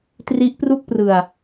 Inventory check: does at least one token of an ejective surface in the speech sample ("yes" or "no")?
no